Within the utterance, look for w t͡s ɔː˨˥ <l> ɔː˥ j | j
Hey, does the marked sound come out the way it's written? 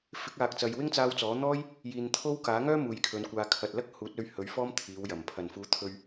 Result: no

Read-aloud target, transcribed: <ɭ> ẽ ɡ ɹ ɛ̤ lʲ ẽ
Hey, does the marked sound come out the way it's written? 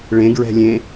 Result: yes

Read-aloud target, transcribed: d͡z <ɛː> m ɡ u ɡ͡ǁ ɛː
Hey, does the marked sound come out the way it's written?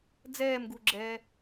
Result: yes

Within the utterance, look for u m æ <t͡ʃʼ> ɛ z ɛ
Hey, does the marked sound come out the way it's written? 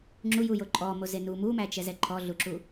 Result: no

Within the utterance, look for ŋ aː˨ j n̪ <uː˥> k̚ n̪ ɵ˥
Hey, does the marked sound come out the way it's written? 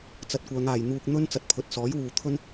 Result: no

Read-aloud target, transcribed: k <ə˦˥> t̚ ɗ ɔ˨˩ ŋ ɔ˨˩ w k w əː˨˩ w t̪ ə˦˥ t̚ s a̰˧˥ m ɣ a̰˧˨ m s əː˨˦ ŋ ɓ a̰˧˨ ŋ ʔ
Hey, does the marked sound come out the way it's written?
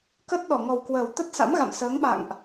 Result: yes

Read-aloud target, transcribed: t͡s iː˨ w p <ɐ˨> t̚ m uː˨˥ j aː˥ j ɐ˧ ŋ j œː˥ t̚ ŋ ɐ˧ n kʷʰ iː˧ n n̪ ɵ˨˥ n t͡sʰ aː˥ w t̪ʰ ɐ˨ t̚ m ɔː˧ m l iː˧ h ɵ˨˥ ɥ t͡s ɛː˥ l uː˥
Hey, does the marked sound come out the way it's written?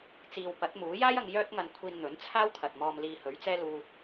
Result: no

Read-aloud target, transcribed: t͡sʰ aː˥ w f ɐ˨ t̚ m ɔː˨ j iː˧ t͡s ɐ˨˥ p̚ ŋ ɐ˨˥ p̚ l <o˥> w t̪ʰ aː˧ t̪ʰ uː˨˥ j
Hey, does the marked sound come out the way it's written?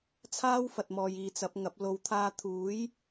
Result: no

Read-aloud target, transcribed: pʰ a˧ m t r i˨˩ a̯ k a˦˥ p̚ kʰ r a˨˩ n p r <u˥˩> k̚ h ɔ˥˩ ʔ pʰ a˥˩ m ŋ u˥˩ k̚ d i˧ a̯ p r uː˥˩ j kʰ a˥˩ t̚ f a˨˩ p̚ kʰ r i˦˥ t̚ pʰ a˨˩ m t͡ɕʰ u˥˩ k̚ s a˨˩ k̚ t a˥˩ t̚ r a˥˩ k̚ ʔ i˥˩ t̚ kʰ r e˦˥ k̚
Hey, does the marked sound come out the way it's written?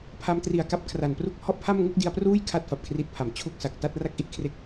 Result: yes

